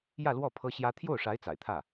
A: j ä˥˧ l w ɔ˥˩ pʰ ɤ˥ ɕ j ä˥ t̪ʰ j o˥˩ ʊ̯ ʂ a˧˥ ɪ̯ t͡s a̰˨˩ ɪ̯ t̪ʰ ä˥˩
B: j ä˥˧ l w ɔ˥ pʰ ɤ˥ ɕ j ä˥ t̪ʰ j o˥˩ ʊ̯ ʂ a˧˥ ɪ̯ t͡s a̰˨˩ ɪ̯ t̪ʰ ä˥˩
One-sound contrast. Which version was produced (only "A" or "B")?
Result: A